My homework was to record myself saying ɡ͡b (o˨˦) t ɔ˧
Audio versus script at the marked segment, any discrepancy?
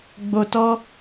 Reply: yes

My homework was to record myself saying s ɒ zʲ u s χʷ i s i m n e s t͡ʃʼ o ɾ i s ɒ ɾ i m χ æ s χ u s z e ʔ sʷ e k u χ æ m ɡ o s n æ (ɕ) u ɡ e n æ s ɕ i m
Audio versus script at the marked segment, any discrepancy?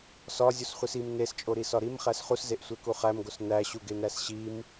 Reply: no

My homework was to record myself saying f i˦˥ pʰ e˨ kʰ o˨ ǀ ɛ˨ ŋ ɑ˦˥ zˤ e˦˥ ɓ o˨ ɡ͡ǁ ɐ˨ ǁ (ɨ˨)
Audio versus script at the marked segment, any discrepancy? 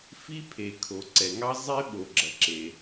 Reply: yes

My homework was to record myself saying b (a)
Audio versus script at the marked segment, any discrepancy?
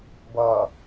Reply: yes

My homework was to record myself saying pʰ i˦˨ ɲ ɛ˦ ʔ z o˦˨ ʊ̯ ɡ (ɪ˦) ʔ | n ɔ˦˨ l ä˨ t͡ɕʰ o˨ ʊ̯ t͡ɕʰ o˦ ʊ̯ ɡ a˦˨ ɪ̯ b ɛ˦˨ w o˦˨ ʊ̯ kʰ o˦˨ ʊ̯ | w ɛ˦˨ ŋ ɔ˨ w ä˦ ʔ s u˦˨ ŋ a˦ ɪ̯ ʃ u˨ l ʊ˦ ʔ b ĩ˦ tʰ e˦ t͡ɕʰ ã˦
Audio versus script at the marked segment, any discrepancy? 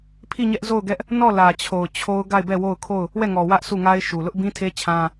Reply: yes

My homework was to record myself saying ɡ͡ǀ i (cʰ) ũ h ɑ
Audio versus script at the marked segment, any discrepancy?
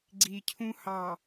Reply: no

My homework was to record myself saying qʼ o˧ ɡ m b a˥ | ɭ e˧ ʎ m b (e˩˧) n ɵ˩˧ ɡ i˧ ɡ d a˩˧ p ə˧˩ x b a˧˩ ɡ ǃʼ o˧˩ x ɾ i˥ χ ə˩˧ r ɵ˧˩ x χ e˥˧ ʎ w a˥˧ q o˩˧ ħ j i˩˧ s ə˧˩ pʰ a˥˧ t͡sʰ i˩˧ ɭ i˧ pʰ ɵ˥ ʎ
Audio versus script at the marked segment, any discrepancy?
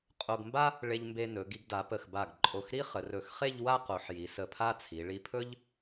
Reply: yes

